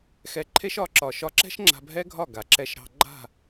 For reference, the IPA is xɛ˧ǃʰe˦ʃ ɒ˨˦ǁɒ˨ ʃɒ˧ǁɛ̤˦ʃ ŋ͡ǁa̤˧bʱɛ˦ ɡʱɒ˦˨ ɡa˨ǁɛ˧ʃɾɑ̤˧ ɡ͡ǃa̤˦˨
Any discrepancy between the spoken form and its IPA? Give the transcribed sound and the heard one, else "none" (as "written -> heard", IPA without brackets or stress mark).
none